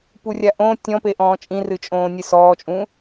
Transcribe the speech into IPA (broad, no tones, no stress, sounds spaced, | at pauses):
p u rʲ a ʔ õ tʲ ɔ̃ p e ʔ ɔ̃ː t͡ʃʼ ĩ r ɨ t͡ʃʼ õː nʲ ɨ s ɔː t͡ʃʼ ũ